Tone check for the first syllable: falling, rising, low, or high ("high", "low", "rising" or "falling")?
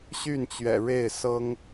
falling